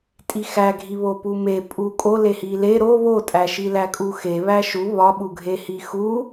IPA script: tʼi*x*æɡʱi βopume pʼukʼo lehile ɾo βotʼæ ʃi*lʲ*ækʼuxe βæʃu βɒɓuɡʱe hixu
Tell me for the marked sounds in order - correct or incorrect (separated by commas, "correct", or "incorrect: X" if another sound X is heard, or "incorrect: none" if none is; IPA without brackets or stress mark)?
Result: correct, incorrect: l